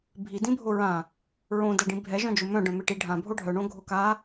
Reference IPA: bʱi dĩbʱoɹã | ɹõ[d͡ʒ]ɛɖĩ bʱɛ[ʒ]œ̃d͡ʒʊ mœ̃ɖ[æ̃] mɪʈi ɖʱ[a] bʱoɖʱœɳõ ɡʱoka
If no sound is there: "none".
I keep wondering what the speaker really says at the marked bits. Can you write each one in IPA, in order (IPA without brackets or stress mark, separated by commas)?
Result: d, ʒ, œ̃, ã